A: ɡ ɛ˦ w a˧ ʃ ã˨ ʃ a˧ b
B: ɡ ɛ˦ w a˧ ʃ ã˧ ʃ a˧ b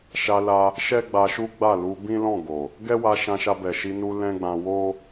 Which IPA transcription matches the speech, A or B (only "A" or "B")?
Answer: B